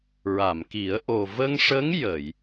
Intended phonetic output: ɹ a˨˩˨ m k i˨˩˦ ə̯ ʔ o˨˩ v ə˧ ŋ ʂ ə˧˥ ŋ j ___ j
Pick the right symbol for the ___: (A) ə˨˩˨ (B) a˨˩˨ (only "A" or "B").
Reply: A